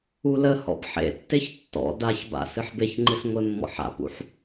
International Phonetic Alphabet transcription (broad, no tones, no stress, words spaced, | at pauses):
uləhɔ̰b ħḛtːeç tːɔ̰ daçba̰ sɨħbeçŋ͡ǃɨs ŋʷemːɔ̰ħa̰pṵħ